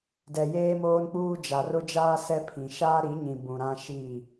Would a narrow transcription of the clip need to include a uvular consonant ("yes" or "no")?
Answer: no